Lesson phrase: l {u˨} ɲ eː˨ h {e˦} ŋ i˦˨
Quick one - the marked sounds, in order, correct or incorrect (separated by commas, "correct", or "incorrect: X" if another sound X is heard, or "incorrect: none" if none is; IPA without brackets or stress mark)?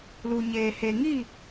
correct, incorrect: e˨